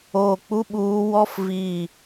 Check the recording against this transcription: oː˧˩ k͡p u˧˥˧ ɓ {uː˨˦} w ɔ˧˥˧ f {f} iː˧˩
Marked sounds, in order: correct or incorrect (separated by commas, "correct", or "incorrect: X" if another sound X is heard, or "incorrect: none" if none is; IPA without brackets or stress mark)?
correct, incorrect: v